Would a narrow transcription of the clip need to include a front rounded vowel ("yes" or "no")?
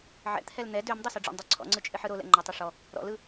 yes